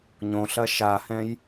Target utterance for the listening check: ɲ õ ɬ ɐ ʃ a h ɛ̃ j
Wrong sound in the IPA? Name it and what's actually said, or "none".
none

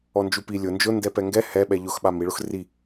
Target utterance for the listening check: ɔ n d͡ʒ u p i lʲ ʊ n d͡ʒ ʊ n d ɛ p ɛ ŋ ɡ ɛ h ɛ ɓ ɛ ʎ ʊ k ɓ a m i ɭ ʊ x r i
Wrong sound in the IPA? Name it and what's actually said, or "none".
k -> x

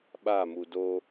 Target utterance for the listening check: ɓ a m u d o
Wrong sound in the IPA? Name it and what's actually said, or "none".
none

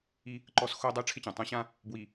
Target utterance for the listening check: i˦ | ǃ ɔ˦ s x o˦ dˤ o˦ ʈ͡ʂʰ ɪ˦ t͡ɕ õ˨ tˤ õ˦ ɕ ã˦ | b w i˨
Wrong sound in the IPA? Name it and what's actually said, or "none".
none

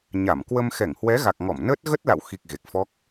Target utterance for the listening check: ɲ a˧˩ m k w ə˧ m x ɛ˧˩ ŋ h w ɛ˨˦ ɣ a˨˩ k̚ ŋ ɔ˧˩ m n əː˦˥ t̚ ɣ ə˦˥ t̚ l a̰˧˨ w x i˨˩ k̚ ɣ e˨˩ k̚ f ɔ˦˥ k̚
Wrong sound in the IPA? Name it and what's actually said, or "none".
none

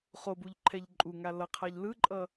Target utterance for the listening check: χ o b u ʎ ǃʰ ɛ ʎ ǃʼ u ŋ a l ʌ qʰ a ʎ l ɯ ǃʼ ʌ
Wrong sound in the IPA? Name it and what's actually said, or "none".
none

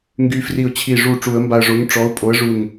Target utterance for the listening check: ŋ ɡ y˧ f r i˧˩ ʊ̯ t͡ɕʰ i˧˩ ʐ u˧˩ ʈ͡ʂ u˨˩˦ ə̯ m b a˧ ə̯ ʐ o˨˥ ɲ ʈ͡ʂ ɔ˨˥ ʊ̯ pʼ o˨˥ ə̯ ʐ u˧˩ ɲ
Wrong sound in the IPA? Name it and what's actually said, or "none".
none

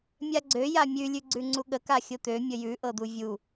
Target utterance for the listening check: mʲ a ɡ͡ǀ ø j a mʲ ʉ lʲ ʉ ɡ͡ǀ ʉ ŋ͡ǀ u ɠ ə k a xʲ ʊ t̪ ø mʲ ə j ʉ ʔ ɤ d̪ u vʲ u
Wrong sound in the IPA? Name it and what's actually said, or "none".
none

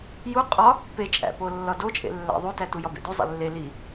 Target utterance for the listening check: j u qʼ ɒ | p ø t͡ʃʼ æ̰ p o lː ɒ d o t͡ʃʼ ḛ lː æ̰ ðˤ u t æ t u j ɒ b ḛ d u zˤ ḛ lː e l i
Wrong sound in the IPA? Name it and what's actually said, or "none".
ø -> e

